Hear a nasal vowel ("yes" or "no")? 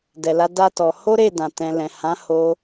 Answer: yes